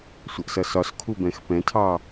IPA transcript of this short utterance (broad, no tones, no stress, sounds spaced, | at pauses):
sʷ ʌ ʔ s ʌ s ɒ s kʰ u b ɛ̃ x p ɛ̃ tʰ ɑ